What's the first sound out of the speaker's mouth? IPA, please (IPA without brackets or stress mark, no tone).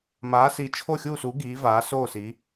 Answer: m